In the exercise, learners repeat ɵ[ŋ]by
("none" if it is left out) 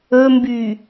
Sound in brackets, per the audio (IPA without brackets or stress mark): m